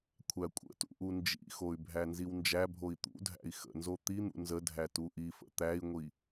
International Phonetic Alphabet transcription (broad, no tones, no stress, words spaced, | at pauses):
kʷʰækʷʼə̰tṵ ʔund͡ʒḭxoy̯ bʱænziwnd͡ʒæbʱoi̯ t̪ṵdʱæ̰i̯ xə̰nzo t̪in̪ṵ nzədʱæ tuʔifə̰ t̪æi̯ŋʷi